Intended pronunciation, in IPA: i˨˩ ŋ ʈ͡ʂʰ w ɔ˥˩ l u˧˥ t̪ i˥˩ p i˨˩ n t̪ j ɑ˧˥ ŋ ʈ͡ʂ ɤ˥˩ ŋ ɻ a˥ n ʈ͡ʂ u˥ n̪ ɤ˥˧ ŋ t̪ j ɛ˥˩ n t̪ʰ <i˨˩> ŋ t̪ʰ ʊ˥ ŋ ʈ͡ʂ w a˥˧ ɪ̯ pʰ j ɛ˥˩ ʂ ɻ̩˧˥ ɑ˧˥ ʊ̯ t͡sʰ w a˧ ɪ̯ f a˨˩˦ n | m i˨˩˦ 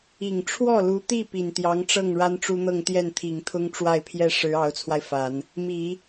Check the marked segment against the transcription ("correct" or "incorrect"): correct